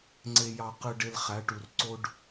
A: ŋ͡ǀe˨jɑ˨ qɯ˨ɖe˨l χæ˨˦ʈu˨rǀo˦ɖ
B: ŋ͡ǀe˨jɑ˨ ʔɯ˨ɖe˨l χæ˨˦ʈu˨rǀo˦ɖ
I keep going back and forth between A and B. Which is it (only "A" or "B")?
A